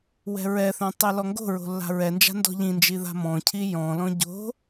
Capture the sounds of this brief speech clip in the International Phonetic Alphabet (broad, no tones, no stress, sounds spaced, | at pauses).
w ɛ̤ ɹ ɛ θ œ̃ tˤ ɛ l ɔ ŋ ɡ o̤ ɹ o̤ lː a̤ ɹ ɛ n d͡ʒ a̤ n d ɔ̤ ʎ ĩ n d͡ʒ i ð a̤ m ɔ̃ cʰ i j ɔ̃ l ɔ̃ ɟ o̤